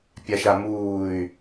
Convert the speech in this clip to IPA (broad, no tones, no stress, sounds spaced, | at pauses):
pʲ a ʃ a m uː y̯